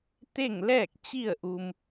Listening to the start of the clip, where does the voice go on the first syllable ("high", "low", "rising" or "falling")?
falling